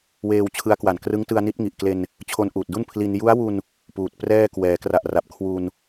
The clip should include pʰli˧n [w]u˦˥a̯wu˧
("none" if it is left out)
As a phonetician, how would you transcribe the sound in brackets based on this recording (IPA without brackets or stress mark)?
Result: j